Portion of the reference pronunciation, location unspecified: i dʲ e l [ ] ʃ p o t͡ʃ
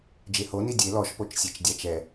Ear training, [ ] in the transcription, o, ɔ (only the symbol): ɔ